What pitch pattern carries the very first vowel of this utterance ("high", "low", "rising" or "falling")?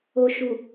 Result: low